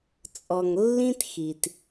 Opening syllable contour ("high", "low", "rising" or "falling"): low